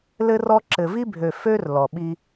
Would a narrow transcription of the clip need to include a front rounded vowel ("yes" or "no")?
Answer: yes